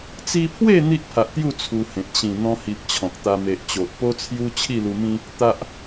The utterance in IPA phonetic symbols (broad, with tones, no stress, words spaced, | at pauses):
t͡si˧pʰwe˥˧ n̪i˦ʔpʰa˨ʔt̪ju˥˧ t͡sʰu˧hẽ˨t̚ ɕĩ˨˩ n̪ɔ̃˧hi˨p̚ t͡ɕʰɔ̃˨k̚t̪a˧ me˨ʔt͡ɕo˨ʔ po˦t͡sʰju˦ t͡ɕʰi˥˧lu˧mĩ˦ | t̪a˨ʔ